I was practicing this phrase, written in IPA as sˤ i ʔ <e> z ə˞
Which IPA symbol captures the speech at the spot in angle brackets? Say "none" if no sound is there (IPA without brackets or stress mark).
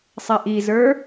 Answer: i